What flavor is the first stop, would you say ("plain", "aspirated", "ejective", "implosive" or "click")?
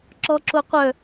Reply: click